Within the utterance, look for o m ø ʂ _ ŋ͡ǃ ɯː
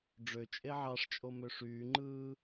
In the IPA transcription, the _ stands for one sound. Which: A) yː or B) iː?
A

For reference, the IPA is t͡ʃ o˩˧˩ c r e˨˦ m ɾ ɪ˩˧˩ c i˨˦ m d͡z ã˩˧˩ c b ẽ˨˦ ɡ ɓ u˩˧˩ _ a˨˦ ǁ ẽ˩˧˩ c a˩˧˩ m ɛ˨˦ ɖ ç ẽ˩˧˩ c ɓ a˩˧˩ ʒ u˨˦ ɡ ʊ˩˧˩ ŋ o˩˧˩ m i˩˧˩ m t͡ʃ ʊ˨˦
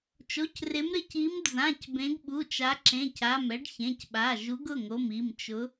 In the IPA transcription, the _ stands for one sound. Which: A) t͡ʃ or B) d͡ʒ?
A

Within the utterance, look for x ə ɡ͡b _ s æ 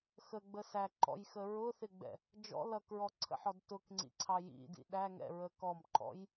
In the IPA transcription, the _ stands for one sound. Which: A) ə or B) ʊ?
A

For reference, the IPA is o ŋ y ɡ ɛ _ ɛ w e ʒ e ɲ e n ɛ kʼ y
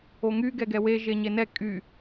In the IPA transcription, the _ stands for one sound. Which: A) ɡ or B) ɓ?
A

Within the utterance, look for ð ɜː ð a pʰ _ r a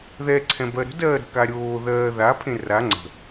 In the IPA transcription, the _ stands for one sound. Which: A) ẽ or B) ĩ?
A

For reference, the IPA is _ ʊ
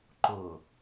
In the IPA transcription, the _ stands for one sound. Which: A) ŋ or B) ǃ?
B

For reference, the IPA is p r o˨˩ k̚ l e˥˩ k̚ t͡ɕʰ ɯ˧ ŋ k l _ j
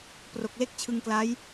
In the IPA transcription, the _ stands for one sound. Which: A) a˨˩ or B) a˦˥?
B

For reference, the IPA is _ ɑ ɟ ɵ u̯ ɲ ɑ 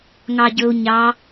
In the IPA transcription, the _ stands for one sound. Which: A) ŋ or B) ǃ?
A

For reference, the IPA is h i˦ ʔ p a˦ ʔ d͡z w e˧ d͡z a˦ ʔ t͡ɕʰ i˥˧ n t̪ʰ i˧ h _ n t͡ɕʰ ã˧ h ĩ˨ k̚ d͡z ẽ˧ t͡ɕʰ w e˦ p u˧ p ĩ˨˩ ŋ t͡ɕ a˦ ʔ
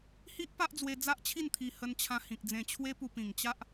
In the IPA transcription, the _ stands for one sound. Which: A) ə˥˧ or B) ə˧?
B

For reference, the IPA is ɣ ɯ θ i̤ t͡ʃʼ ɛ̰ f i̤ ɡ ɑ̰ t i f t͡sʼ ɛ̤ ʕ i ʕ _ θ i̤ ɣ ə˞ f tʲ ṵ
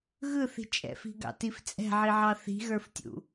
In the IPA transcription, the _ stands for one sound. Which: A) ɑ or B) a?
A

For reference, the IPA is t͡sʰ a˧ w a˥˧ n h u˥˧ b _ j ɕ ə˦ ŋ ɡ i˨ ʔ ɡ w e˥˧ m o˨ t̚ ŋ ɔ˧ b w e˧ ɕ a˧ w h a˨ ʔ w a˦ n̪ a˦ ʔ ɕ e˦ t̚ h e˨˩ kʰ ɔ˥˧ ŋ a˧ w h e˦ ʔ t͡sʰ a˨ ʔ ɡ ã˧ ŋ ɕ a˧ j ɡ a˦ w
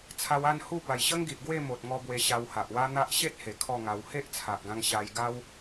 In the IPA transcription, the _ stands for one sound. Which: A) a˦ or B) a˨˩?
B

